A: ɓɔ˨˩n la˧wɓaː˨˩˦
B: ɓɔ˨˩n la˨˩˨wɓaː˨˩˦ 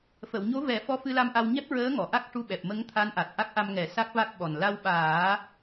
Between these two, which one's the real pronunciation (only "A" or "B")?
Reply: A